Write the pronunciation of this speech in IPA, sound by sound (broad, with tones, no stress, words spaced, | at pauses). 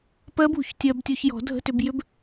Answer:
pɜ˦˥bṳ˩çtʲɜ˧btʲo˧ç jɔ̤˨˩˦dʱə̤˧˥˧tʏ˧bjʏ˦˥b